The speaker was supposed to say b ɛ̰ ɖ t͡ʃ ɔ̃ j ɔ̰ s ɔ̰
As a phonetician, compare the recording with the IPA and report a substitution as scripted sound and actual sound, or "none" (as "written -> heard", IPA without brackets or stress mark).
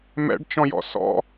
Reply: b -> m